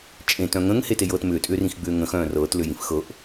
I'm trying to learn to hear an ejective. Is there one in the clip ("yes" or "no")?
yes